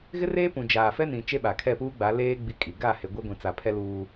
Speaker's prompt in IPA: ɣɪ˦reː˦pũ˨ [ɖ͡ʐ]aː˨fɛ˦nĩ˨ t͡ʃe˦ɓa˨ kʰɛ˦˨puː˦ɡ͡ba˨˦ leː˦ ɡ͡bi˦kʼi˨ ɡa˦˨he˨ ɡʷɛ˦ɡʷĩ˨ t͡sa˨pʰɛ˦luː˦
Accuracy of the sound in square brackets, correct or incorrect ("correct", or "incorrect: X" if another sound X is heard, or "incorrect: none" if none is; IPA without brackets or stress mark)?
incorrect: d͡ʒ